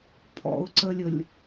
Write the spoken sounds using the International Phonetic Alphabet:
pʰ ɔ̰ ʊ̯ ǀ ə lʲ ə lʲ

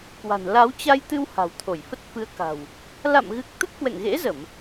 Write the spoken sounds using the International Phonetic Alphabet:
k w a̤˨˩ n l a˨˦ w t͡ɕ a˧ j t̪ ɨ˧ w h a̤˨˩ w t̪ʰ o˧˩ j f ə˦˥ t̚ f ɨ˧ ə̯ k a̤˨˩ w | l a̰˧˨ m ɣ ɨ˨˩ k̚ t̪ ə˦˥ t̚ k w ɛ̰˧˨ ŋ ɣ ḛ˧˥ z ə˧˩˨ m

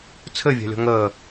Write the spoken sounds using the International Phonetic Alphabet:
t͡sʰ ɘ vʲ a̤ lʲ ɔ̤ ŋ əː

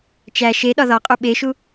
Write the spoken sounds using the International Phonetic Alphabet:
t͡ʃ æ ʃ e ɗ ɒ ð ɒ qʼ u ɓ e ʃ u

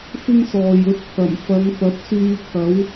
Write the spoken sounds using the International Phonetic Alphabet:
f ɪ˥ ŋ s ɔː˨ j ɵ˧ t̚ t̪ʰ ɐ˨˩ m f ɐ˨˧ ŋ p ɐ˨˥ p̚ s yː˧ t̪ʰ ɐ˨˥ w

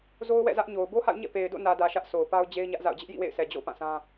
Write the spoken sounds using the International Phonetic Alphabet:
z o˦ ʊ̯ w ɛ̰˦˨ z ä˦ ʔ ɲ o˨ ʊ̯ b o˦ h a̰˦˨ ʊ̯ ɲ ɛ̰˦˨ p e˨ ɪ̯ d o̰˦˨ n ä˨ d ä˨ ʃ ä˦ ʔ sʰ o˨ ʊ̯ p a˦ ʊ̯ d͡ʑ e˦ ɪ̯ ɲ ä˦ ʔ z a̰˦˨ ʊ̯ d͡ʑ ɪ˦ ʔ j ḭ˦˨ w ḛ˦˨ ɪ̯ sʰ ɛ˨ d͡ʑ o̰˦˨ ʊ̯ p ã˦˨ s ã˦

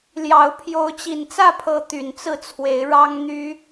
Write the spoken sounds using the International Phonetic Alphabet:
l j ɑ˨˦ ʊ̯ pʰ j o˨˦ ʊ̯ t͡ɕ i˨˩ n t͡s ä˥˨ pʰ ɤ˨˦ t̪ y˨˩ n t͡s ɹ̩˥˨ t͡sʰ w e˨˦ ɪ̯ ɻ ɑ˦ ŋ n̪ y˦

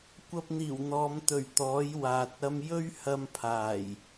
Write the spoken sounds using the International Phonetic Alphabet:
kʷ ɐ˧ p̚ n̪ iː˨˩ w n̪ ɔː˨˧ m t̪ ɵ˨˩ ɥ t̪ ɔː˨˥ j w aː˨ t̚ ɐ˧ m j ɵ˥ ɥ h ɐ˧ m pʰ aː˨˩ j

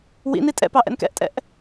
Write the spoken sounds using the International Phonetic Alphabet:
w ḭ n i tʼ ɛ̰ p ɑ ʔ ɛ̰ n k ɛ̰ ʔ tʼ ɛ̰ ʔ

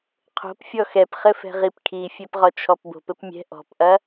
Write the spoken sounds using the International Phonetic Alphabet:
qʰ o̤ p fʲ ɔ x ɛ p χ ɘ f ɛ̤ ʁ i p kʰ i fʲ ɛ p ʁ ɔ t͡ʃʰ ɔ p b o̤ p ɘ p mʲ ɛ̤ ʔ ɔ̤ p ʔ ɐ

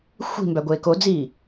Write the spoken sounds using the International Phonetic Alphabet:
xʷ i̤ m b æ ɡʷ eː k o d͡z iː

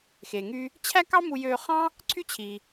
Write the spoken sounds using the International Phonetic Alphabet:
x e˩ ŋ y˧ | t͡ɕʰ æ˥ k ɑ˥ m u˧ j øː˧ χ ɑ̃˥ | ǀʰ y˥ t͡ɕʰ i˩

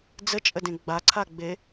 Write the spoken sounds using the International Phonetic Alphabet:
d͡z ə t͡ʃʼ ə d ẽ ɡ͡b a ǀʰ a ɡ͡b e

